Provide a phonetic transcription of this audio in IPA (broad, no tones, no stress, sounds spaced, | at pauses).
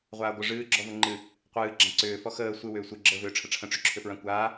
ʁʷ aː ɡʷ ə ʐ ɨː ɡ͡ǁ ɔ v ə ŋ͡ǃ ɨ | qʷ ɨː ɡ͡ǁ ã ǀ ʏː f ɔ x əː sʷ ɨ w ʏː sʷ ɨ ɡ͡ǁ əː v ʏː ʈ͡ʂʰ ə ʈ͡ʂʰ ə̃ ʈ͡ʂ ʏ ǁʰ ʏ f ɹ ã kʷ aː